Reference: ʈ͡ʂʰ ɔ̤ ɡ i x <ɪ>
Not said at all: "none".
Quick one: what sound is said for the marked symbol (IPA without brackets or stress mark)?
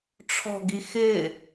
ɪ